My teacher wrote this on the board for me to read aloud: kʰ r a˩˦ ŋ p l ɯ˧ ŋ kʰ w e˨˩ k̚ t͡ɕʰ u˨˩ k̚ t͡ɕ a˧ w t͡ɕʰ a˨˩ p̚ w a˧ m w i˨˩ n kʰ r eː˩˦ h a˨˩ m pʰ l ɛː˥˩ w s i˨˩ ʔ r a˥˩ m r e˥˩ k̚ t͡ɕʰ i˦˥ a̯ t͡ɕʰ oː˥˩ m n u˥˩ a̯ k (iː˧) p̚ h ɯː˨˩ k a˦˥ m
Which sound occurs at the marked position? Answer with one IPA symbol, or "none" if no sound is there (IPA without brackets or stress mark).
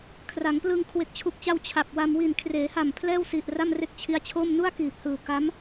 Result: iː˨˩